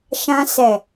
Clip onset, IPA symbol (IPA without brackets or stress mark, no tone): ʃ